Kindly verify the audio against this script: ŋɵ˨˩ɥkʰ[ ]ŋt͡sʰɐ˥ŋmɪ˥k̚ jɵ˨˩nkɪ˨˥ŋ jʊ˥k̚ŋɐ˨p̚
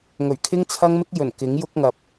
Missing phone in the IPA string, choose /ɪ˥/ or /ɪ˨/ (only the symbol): ɪ˥